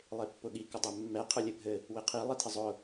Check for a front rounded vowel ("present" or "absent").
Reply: absent